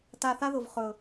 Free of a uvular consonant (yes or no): no